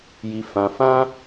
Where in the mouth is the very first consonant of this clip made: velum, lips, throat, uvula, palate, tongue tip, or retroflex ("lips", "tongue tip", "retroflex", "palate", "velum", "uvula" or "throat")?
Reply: palate